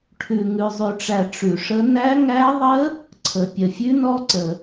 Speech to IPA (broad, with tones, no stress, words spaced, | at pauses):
ʈʰʉ˨ ŋʉ˨zˤʉ˨ʈ͡ʂæ˨ ʈ͡ʂʉ˨ʂə˦˥ næ˦˥ ŋæ˦˥ðˤə˦˥ | ǀʰə˨pʲə˨ fʲʉ˦˥nɔ˦˥ǀə˨